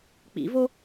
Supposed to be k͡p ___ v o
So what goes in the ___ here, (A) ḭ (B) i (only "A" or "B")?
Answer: A